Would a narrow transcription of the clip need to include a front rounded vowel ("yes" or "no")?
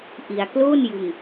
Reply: no